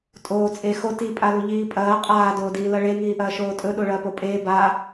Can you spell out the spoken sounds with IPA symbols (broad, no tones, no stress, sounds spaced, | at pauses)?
tʼ oː t͡sʼ e x o t i pʼ a l u ʎ iː pʼ ɐː qʼ aː d oː d iː l ɐ ɭ e ŋ iː ʔ ɐː ʃ oː tʼ ɵ ɗ o ɭ ɐː p o pʼ eː b a